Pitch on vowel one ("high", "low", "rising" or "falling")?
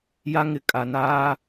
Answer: high